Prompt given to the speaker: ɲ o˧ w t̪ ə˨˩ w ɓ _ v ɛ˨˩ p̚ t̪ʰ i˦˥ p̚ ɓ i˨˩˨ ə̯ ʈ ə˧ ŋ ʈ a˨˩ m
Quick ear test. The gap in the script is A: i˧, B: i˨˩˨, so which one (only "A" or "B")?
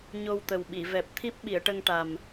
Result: B